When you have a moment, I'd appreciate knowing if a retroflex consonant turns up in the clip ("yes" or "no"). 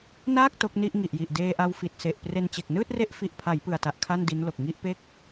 no